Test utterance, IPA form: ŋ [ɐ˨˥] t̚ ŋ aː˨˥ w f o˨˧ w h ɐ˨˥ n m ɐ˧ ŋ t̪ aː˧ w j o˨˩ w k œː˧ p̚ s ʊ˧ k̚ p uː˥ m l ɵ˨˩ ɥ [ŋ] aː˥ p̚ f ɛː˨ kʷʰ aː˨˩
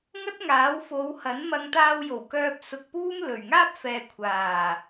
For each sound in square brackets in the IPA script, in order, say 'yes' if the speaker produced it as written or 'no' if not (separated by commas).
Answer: no, yes